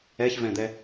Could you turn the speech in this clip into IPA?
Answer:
ɛ ç v ɛ̃ d̪ ɛ

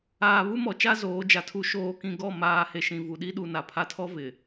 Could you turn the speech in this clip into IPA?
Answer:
aː˨ β u˦ m ɔ˨ t͡ʃ a˦ z oː˨˦ d͡ʒ a˨ tʰ u˦ ʃ oː˨ k ĩ˨ ɡ ɔ˦˨ m aː˨ h e˨ ʃ ĩ˨ v u˨ ɗ i˦ ɗ u˨ n a˨ pʰ a˦ tʰ ɔ˦ v ɪ˨

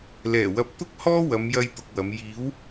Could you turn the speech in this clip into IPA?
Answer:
l ɛː˨˩ w ɐ˨˥ p̚ t̪ ʊ˥ k̚ h ɔː˥ w ɐ˨˧ m j ɐ˧ j t̪ ʊ˨ k̚ w ɐ˨˧ m j iː˨˥ w

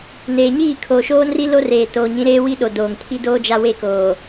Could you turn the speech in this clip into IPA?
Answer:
n eː˨ ɲ iː˦˨ kʰ oː˨ ʃ oː˦ n r i˦ l o˦ r eː˨ t oː˨ ɲ ĩ˨˦ ɾ eː˦ w i˦ ɗ o˨ d oː˨ ŋ pʰ i˦ d oː˦ d͡ʒ a˦ w e˦ k oː˨

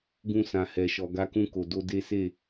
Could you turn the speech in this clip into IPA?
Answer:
ɡ ũ˧ s ã˨ h ɛ˨ ʃ ɔ˨ ɡ a˨˦ k ũ˧ k o˨ d o˧ d e˦ s e˦˨

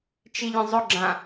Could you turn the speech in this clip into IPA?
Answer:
t͡ʃ i ʎ ə̃ zˤ ʊ ɡ͡ǁ ã

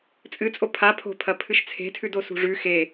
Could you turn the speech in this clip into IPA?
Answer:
t͡sʼ ɨ t͡sʼ o pʰ a pʰ o̤ pʰ ɐ pʰ ɨ ʃ t͡sʰ e̤ tʰ ʉ d o s ṳ ʐ ʉ x e

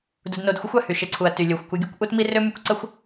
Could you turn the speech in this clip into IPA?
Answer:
d u˧ d n o˧ d xʷ ə˦ xʷ a˨ h y˨ ʃ e˨ ǀʰ u˨ ɐ̯ t y˨ lʲ o˨ xʷ kʷ e˧ ɡʲ o˦ kʷ ʔ u˦ t m i˦ r ø˦ m y˧ kʷ ǀ ə˦ xʷ

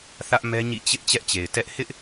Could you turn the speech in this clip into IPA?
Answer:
θ ä˦ ʔ m ɛ˦ ɲ ḭ˦˨ t͡ɕ ɪ˦ ʔ t͡ɕ ɛ˦ ʔ t͡ɕ e˨ ɪ̯ t ɛ˦ ʔ h ɪ˦ ʔ

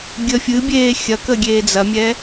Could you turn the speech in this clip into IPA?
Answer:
ɡʲ ə fʲ ɨ bʲ eː xʲ ɐ k ə ɡʲ eː d͡z ɐ mʲ ɛ

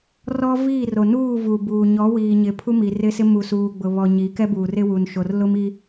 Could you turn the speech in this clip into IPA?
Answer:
r ɔ˦ v iː˦˨ r o˨ n uː˦˨ v u˨ b uː˨ ɲ ɔ˨˦ w iː˨ ɲ ɪ˨ pʰ u˦ m i˨ r ɪ˦ s ɪ˦ m u˨ s uː˨ ɡ͡b ʊ˨ β ɔ˨ ɲ i˨˦ k ɛ˦ b uː˨ r ɪ˦ w u˨ n ʃ o˨ r l ʊ˦ m i˦

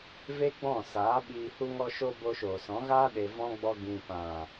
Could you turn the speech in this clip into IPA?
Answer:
v e˦ ɡ͡b ɔ̃˦˨ s aː˨˦ ɓ iː˧ h u˦ ŋ ɔ˦ ʃ o˦ b o˧ ʃ oː˨ s ɔ̃˨˦ ɣ aː˦ ɗ e˨ v ɔ̃˧ ɡ͡b ɔ˧ ɡ ĩ˨ p ã˨

